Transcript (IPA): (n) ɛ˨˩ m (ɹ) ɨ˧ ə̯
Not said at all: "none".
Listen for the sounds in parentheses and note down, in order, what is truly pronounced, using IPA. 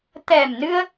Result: t̪, n

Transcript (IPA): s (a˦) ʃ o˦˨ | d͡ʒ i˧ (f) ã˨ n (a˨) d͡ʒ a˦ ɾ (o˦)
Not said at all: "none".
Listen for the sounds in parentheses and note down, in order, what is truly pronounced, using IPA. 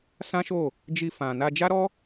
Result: ã˦, f, a˧, ɔ˦

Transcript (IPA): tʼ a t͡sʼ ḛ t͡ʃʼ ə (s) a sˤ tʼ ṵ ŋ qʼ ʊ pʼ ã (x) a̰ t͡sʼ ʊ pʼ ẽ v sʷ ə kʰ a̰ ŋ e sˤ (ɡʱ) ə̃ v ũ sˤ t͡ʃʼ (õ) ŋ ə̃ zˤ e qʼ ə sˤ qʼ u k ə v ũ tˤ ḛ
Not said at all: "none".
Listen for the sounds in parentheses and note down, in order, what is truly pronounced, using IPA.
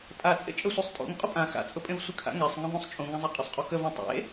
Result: sʷ, x, ŋ, ũ

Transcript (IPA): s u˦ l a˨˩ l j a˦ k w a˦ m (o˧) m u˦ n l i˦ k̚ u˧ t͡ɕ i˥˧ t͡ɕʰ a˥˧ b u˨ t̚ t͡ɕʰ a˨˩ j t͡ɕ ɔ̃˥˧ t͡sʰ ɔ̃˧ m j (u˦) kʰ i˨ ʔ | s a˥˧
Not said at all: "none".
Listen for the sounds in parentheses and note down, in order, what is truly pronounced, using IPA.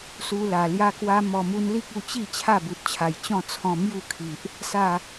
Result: ɔ˧, u˥˧

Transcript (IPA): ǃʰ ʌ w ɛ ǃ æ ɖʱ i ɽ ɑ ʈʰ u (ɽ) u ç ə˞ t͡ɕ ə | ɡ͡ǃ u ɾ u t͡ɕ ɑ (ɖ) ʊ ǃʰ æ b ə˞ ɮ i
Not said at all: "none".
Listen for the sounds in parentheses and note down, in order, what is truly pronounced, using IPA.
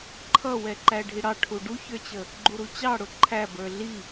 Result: ɖ, ɽ

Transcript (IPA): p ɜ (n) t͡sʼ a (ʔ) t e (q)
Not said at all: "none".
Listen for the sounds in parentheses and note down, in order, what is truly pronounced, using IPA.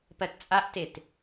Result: t, ʔ, t

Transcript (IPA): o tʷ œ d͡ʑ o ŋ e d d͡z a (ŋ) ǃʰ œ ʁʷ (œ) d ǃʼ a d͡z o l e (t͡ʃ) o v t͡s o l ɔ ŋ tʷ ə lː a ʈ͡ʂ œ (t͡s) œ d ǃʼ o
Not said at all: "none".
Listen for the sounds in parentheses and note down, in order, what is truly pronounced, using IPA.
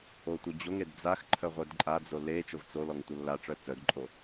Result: x, œ, t͡ʃ, t͡s

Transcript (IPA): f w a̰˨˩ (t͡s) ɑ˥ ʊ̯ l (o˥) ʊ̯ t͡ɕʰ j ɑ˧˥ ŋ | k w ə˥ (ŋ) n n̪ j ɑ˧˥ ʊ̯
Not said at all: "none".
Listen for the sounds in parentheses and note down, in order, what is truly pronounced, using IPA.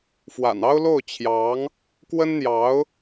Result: n, o˥˩, none

